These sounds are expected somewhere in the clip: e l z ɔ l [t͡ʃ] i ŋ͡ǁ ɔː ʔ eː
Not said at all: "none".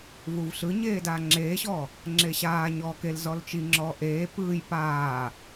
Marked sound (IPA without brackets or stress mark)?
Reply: t͡ʃ